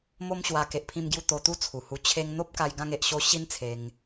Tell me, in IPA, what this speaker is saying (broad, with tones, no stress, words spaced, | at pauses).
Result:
mo˦mɕwa˧ ke˨ʔpʰĩ˧mɡju˧ t̪o˧t̪u˦t͡sʰu˨˩hu˧ t͡ɕʰe˧ŋ n̪o˦p̚ka˧j ɡã˧ŋe˨ʔɕo˧ ɕi˦nt͡sʰe˧ŋ